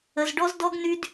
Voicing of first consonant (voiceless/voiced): voiced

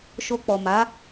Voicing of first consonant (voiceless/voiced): voiceless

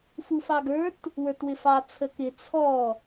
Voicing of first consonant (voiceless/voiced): voiceless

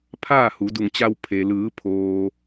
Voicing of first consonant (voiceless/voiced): voiceless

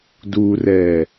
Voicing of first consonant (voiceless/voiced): voiced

